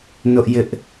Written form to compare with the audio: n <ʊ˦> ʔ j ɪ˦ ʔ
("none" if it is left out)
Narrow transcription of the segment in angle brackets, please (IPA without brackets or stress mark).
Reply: ʊ˦